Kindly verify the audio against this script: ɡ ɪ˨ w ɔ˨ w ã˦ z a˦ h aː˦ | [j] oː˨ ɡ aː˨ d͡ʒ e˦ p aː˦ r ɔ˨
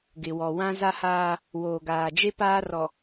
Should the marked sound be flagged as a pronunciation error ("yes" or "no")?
yes